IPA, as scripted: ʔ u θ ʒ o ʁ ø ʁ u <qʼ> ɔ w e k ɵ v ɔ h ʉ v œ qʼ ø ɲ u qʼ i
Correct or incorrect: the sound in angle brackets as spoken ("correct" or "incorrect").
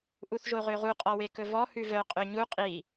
correct